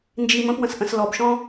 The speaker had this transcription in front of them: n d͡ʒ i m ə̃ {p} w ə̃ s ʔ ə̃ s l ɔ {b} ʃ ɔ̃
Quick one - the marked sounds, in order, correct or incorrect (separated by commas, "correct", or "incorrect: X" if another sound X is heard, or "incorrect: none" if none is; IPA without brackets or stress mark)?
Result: correct, correct